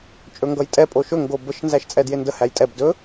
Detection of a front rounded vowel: absent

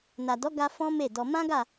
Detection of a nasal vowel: present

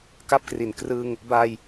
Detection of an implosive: absent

